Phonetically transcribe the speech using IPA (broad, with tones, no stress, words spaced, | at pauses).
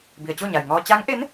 bi˩ə̯t͡ɕo˥˨ɲa˩jŋɔː˧ t͡ɕa˧˥ŋʔe˧˥n